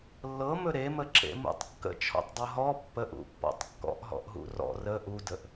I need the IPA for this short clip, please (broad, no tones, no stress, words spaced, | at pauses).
lːɤmɵ ɾeməǁḛmṵtˤ kːə̰t͡ʃʰɔ̰tˤdˤɤ ɦɔ pːəʔṵpːɔ̰tˤ kːɔ̰ʔɦɔ̰ʔɦṵ rɔ̰ rə ʔudəʔ